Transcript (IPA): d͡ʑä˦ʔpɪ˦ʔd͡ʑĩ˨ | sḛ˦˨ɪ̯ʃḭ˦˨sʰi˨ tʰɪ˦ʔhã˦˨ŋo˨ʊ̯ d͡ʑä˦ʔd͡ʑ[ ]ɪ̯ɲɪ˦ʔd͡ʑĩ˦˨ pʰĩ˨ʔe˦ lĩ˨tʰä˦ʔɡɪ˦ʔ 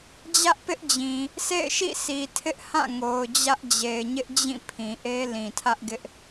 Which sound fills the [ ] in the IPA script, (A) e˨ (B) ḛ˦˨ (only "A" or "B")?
A